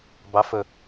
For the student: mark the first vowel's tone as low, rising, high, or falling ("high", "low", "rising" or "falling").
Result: rising